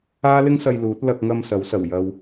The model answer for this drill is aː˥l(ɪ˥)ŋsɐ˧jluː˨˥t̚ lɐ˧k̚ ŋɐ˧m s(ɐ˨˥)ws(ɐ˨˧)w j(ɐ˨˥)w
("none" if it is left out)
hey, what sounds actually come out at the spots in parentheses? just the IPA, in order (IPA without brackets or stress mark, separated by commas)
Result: ɪ˥, ɐ˨˥, ɐ˨˩, ɐ˨